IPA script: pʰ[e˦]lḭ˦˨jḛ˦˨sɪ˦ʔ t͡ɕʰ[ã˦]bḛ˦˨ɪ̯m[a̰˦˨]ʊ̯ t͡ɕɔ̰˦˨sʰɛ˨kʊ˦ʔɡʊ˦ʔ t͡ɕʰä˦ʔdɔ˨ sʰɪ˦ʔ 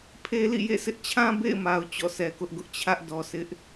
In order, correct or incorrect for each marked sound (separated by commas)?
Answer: correct, correct, incorrect